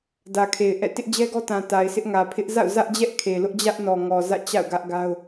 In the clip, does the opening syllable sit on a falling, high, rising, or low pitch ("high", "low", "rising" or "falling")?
low